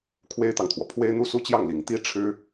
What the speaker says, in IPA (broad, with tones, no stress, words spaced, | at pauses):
kʰwe˥ɪ̯t̪ɑ˨ŋt̪ʰwɔ˩ pʰwe˥ɪ̯n̪u˥˧su˥˧t͡ɕjɑ˥˩ŋ li˨˩ŋt̪i˥ʈ͡ʂʰɻ̩˥